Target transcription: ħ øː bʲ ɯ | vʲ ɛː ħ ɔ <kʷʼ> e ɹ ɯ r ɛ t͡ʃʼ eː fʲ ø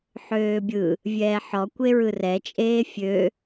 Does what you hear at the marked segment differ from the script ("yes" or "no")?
yes